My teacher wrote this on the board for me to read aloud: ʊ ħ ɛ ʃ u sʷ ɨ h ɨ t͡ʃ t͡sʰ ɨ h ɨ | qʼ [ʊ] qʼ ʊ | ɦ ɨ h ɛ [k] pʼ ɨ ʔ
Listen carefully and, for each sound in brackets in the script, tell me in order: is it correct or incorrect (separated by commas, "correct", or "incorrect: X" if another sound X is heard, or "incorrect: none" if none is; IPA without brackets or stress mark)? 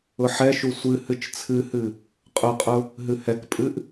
correct, correct